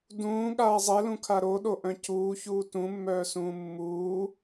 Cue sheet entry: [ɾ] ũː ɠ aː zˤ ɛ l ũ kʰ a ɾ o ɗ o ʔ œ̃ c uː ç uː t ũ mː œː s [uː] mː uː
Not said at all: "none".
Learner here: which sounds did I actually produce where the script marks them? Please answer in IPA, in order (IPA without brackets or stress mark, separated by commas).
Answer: d, ũː